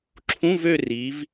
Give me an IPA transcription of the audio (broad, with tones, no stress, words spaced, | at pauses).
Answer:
ǁʰũ˧˥˧vø˦˨ri˩˧v